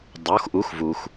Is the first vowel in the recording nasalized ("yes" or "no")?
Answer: no